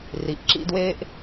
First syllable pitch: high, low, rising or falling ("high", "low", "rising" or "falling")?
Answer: low